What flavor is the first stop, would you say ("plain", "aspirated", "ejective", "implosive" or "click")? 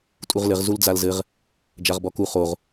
ejective